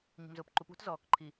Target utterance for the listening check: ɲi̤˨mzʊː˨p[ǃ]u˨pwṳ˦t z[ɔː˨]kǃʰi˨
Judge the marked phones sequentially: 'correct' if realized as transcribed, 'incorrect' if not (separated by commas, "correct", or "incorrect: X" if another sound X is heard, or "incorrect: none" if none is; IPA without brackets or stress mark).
correct, correct